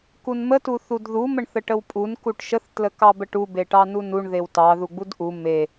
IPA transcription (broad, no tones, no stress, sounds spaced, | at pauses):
k u n m ə t u θ u d ð u m ə ɳ θ ə ʈ ə w pʼ u n k u ʈ ʃ ə θ t l ə k ɑ b ə ʈ u b e ʈ ɑ n u n u ɳ ð e w t ɑ ð u ɡ͡b u d ʔ u m e